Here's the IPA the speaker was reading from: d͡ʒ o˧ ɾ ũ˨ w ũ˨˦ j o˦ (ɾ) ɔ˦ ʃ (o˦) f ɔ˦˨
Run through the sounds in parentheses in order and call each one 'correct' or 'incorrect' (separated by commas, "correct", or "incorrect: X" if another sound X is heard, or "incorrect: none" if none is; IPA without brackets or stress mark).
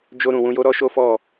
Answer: correct, correct